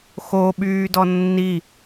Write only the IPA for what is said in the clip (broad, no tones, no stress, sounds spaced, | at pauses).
x o ɓ yː d ɔ nː i